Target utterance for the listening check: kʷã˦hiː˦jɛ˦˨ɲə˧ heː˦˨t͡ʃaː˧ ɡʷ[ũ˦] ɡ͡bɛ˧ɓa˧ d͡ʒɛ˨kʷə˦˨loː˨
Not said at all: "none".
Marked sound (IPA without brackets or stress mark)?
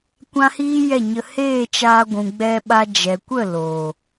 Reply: ũ˨